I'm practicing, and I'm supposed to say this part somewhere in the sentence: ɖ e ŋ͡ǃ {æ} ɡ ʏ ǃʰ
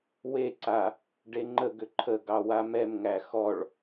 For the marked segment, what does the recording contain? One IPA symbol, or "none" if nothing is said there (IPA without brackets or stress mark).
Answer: ə